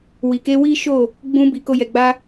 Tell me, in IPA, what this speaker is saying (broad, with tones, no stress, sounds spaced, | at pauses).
w i˨ k e˧ w i˦ ʃ o˦˨ | ɡ͡b ũ˧ b i˨ k o˧ j ɛ˨ ɡ͡b a˧